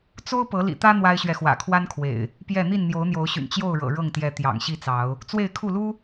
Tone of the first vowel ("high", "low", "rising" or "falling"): high